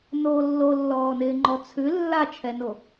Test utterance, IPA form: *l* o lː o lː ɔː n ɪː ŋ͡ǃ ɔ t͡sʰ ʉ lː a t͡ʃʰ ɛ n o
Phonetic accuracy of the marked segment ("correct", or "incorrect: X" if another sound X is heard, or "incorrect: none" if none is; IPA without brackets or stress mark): incorrect: n